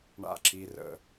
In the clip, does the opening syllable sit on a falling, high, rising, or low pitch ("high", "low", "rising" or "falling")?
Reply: falling